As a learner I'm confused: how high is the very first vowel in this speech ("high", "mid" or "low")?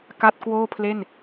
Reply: low